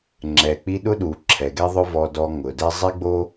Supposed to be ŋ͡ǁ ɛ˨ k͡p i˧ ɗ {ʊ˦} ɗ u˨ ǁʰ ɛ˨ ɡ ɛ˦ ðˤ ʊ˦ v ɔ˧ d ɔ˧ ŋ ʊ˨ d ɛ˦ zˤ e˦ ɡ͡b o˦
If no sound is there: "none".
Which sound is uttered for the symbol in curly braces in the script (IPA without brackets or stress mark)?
ʊ˦